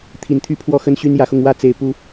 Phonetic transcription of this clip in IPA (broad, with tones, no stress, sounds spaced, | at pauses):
t̪ʰ i˨˩ n t̪ʰ y˦ pʰ w ɔ˥˨ x ə˦ n ɕ y˦ n j ä˨˦ x ʊ˧ ŋ w ä˥˨ t͡s e˨˩ ɪ̯ p u˨˦